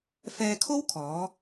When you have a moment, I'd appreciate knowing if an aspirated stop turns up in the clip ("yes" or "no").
yes